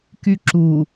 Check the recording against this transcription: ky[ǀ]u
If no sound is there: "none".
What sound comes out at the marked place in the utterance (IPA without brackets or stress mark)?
ǁ